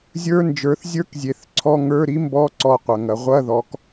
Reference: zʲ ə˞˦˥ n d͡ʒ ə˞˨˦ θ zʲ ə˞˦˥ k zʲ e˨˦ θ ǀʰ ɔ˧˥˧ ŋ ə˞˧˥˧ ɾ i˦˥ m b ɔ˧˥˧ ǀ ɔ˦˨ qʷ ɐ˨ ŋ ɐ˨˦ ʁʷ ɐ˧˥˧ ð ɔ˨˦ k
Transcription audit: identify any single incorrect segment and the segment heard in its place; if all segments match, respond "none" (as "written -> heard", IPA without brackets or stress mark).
none